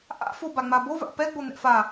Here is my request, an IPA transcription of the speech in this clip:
ʔ a̰ f o b a ŋ͡m a b o v a̰ p ɛ ɡ͡b o n̪ ɛ̰ f a

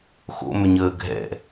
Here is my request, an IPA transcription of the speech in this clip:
x o̰ m ʏ ɲ əː ɡʱ ɛ̰

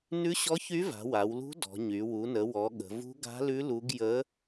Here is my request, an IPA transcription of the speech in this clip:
n ʉ˧˥ ɕ ɔ˧˥ ç y˧˥ v a̤˩˧ w a˩˧ w l ṳ˧˥ d ɔ̤˩˧ ɲ y˩˧ w u˩˧ n ə˩˧ w ɔ˩˧ ɠ ə̤˩˧ v ṳ˧˥ ɡ a̤˧˥ l ʉ˧˥ l u˧˥ ɡ j ə˧˥

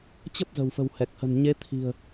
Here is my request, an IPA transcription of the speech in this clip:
t͡ɕ ə˦˥ p̚ z ə̤˨˩ w f ə̤˨˩ w h ɛ˨˩ k̚ h ə̤˨˩ n ɲ e˨˦ t̪ʰ i̤˨˩ ə̯

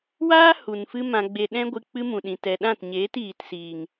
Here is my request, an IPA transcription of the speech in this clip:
w aː˦ h u˨ n f ɨ˦ m ã˧ ɡ͡b e˧ ɗ ɛ̃˦ ɡʷ ɨ˧ k͡p ɨ˦ m ũ˨ ɗ ĩ˨ t ɛ˨ ɗ ã˦˨ t ɲ eː˨˦ t iː˨ t s iː˨ ŋ

